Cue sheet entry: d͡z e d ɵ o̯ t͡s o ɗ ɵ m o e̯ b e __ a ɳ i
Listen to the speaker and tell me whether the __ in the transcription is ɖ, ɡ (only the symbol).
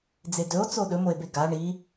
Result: ɡ